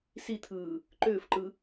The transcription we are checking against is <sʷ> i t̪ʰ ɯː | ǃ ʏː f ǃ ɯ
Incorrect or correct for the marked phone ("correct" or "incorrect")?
incorrect